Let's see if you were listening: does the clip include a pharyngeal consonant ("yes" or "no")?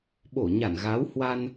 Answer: no